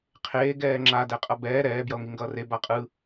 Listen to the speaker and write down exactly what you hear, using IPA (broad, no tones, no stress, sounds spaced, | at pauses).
qʰ eː ɡ ɛː ŋ͡ǁ a d ɛ qʼ ʌ b ɛː ɾ ɛː b j ʌ o̯ ŋ i ŋ ɡ ʌː r e b a qʼ ɯ